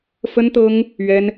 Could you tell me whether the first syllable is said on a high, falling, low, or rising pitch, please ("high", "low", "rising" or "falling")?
high